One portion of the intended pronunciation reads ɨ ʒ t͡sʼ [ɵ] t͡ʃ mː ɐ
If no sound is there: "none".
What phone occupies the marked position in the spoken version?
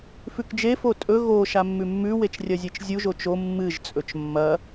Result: ɵ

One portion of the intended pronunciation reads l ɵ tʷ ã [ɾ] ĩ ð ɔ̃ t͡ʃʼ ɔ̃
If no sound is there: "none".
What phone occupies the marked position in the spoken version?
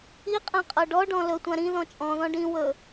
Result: ɾ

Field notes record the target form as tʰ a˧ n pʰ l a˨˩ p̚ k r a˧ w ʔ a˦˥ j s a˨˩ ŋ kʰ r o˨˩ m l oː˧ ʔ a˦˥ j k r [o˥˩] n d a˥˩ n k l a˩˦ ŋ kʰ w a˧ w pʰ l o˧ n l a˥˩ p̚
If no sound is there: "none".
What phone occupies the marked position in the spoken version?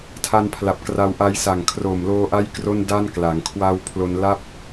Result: o˥˩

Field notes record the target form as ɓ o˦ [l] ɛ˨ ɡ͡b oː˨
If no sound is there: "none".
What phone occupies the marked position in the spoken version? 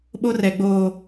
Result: r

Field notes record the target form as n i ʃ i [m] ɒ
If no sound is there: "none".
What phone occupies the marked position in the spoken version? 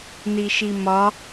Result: m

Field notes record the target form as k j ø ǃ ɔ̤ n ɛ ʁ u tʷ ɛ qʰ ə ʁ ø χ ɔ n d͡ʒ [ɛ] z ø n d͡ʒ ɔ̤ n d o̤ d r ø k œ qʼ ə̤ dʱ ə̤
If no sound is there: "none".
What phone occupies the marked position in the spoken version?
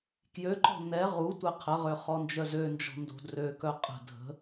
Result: œ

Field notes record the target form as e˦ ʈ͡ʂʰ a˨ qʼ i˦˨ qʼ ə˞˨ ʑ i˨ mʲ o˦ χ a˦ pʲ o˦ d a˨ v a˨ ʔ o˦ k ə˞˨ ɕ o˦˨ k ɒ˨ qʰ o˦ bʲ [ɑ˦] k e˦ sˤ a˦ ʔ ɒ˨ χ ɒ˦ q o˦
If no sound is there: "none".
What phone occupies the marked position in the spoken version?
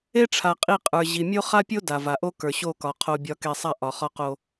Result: ɒ˦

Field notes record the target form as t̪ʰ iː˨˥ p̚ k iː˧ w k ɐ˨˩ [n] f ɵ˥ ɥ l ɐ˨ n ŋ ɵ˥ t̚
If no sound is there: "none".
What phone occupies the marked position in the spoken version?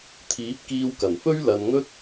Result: n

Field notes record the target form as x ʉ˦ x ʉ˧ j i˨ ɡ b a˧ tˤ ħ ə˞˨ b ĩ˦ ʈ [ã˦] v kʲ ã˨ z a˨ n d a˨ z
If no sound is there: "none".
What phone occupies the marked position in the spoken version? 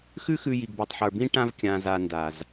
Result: ã˧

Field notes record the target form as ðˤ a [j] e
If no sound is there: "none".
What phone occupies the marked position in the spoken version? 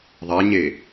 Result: ɲ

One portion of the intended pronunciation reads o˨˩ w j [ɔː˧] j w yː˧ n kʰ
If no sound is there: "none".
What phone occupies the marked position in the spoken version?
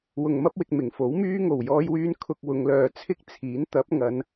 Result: ɔː˧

